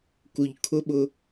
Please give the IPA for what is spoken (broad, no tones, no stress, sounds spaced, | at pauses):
k u ʎ kʰ ʊ ɓ ʊ